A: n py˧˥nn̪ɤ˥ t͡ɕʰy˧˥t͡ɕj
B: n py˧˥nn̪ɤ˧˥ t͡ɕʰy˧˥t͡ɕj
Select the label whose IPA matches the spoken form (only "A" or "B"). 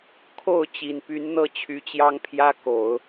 A